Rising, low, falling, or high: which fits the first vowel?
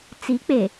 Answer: rising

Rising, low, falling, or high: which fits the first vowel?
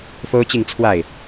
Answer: high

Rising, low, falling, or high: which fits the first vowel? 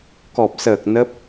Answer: low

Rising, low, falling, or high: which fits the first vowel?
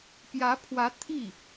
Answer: rising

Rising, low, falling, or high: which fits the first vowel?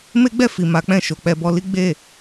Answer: high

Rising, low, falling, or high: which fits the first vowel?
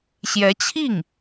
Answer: rising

